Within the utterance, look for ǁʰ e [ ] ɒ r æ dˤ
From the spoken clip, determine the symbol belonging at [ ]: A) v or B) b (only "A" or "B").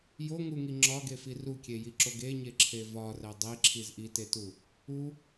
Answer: A